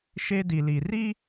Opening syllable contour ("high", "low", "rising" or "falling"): high